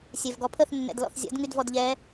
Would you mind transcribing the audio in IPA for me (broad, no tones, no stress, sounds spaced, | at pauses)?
sʲ ɛ v ɡ ɔ pʰ ə θ nː ɛ̰ d l ɔ̰ θ zʲ ɔ̰ d ŋ y d v ɔ d ʎ ɛ